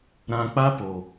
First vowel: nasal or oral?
nasal